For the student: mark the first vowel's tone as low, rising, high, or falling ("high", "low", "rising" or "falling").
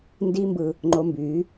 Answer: high